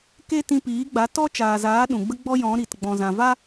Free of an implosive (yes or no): no